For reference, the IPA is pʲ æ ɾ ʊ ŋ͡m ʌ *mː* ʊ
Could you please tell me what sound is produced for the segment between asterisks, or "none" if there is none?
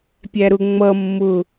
mː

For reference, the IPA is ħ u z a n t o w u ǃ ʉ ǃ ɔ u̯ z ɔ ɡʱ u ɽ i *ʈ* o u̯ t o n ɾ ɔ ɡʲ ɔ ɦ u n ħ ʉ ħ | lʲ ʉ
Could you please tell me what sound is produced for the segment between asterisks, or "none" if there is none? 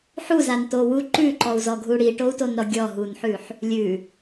ʈ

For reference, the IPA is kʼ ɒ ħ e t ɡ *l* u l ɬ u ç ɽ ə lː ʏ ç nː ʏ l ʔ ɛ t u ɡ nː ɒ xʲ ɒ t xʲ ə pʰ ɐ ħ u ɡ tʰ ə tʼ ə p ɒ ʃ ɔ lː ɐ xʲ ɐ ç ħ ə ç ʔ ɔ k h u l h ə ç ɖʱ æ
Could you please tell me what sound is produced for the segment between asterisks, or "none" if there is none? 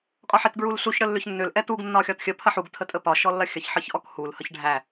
ɹ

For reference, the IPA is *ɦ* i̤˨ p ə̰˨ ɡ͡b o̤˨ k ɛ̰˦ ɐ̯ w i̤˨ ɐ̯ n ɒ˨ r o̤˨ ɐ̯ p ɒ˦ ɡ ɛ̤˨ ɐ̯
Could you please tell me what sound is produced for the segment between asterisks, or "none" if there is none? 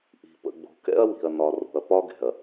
ʔ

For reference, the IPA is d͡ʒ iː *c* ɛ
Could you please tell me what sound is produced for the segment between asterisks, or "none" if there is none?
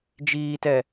t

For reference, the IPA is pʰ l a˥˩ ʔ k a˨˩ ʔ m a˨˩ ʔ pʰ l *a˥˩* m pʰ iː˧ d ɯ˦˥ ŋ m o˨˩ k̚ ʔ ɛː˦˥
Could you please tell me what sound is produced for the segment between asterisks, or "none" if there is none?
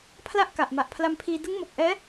a˧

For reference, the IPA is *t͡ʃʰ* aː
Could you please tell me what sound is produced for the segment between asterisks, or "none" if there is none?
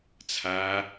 t͡sʰ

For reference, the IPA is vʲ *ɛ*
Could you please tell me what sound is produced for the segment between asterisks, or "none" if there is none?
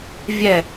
ɛ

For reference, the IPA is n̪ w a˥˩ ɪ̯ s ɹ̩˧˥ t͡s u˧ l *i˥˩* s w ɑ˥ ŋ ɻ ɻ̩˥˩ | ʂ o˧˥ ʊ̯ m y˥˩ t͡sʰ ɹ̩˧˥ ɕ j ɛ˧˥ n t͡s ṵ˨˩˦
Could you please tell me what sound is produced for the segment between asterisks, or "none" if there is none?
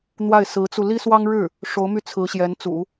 i˥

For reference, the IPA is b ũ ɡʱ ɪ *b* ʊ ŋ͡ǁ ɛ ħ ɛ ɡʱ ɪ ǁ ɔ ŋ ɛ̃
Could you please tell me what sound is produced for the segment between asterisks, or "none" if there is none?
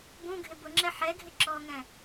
b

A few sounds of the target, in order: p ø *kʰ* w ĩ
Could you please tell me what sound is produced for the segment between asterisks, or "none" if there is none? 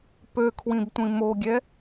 kʰ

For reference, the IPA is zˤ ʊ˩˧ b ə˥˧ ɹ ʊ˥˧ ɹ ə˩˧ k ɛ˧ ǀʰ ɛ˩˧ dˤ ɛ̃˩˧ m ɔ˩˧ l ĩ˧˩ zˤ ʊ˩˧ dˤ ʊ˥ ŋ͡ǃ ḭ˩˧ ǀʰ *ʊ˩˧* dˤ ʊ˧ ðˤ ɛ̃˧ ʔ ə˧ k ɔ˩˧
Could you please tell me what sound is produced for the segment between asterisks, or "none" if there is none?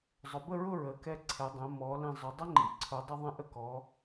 ʊ˩˧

